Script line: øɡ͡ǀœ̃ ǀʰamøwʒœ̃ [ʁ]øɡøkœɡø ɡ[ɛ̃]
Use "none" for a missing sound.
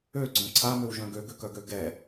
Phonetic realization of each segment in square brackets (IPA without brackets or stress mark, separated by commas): ɡ, ɛ